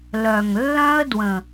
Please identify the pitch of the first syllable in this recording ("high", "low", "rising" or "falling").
low